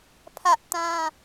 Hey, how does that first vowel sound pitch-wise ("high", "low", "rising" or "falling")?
high